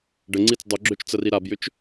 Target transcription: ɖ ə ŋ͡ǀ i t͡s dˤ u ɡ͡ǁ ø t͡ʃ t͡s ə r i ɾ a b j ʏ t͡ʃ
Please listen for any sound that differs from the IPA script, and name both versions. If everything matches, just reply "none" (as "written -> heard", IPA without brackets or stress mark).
none